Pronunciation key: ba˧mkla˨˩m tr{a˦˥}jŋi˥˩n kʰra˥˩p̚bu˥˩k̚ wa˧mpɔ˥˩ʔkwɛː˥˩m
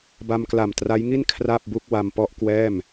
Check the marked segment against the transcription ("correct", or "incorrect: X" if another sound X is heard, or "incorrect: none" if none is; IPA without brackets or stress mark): correct